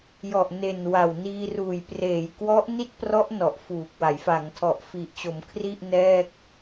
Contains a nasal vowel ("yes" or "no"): no